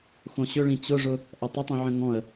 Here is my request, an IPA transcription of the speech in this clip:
xõɕʏɭĩ t͡ɕʊʐʊ | ʔɐtˤətˤĩʕə̃ ŋɔ̃ə̯

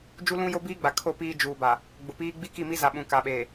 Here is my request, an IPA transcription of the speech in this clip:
d͡ʒu˦lũ˦jo˦ biː˦ɡ͡ba˨kʰo˦˨ piː˦ d͡ʒuː˨ba˨ | ɡ͡bʊ˨piː˦ ɡ͡bi˦ki˦˨mi˦za˨ ɓũ˨ ka˨ɓeː˨

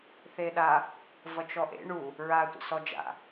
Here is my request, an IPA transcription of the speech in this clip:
θeɗa | vʌt͡ʃɔʔḛ ɳu | ɹa tʷə̰sɔd͡ʒa̰

